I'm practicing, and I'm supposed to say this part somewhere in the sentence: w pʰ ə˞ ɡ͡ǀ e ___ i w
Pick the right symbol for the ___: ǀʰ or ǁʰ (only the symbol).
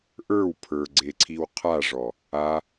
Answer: ǀʰ